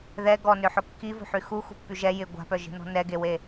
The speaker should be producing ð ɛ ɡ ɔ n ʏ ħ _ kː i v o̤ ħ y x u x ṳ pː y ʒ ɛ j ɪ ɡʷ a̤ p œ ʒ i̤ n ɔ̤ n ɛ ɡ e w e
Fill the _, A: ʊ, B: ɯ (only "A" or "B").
A